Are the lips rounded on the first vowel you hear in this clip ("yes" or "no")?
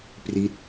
no